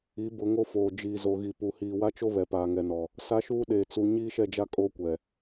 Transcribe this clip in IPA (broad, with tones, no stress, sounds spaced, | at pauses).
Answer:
i˨˦ b ʊ˨˦ ŋ o˦ f oː˨ d͡ʒ iː˨ z o˨ ɣ i˨ p u˨ h iː˨ w a˦ t͡ʃ o˦ β ɛ˨ p aː˨ ŋ ɛ˨ n ɔ˨ | s a˦ ʃ uː˦ ɗ eː˨ t͡s u˨ ɲ iː˦ ʃ ɛ˦˨ d͡ʒ a˦ kʼ o˦ kʷ ɛ˨